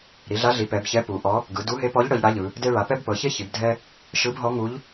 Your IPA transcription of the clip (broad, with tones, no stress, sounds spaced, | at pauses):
ɾ i˩˧ ɮ a˧˥ ɮ i˩˧ p ɛ˩˧ b ç ɛ˧˥ p u˩˧ ʔ ɔ˧˥ | ɡ ɯ˩˧ d u˧˥ ɦ e˧˥ p ɔ˧˥ ʎ ɽ ɤ˩˧ ʎ ɽ a˧˥ ʎ ɯ˩˧ | d e˥ ɭ a˩˧ p ɛ˥ b p ɤ˩˧ ç e˥ ç i˩˧ b dʱ ɛ˥ | ʃ ɯ˧˥ b ɦ ɔ˧˥ ŋ u˧˥ ʎ